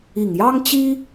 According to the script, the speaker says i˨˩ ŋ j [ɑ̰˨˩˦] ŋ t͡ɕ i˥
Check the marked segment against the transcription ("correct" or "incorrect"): incorrect